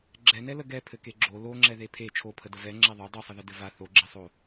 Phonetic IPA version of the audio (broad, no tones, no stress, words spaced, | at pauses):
ɡ͡ǁɛnɛlə ɡɛ pʰɘkeɡ͡ǁo loŋ͡ǁɛ ðepʰe t͡ʃʰopʰədə vɛ ŋ͡ǁɛðˤo dˤusˤəðə dɘva θoɡ͡ǁesˤo